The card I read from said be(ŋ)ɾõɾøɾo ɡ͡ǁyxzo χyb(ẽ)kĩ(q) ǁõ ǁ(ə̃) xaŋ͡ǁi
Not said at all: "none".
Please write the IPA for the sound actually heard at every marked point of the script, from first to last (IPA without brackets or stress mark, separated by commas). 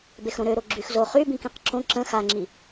x, ĩ, q, ə̃